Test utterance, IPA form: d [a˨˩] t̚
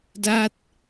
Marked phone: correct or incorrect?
incorrect: a˦˥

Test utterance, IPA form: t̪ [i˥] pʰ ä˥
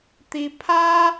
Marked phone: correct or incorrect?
correct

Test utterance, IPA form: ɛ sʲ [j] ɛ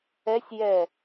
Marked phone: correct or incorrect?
correct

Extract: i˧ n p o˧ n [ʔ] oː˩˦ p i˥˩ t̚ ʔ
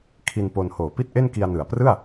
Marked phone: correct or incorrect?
incorrect: h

